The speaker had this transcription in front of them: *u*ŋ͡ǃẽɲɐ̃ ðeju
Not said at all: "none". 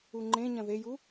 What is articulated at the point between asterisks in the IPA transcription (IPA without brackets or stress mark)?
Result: u